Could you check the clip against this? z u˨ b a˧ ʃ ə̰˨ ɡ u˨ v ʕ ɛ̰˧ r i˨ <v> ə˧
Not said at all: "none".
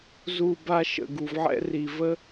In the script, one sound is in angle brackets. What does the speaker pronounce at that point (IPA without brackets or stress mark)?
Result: v